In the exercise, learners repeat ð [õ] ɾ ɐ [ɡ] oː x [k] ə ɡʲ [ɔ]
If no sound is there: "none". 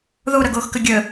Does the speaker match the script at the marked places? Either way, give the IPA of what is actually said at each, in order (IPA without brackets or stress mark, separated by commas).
o, ɡ, k, ə